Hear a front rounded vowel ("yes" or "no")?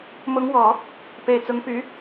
yes